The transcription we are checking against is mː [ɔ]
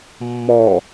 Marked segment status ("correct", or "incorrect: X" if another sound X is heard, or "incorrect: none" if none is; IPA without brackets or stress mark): correct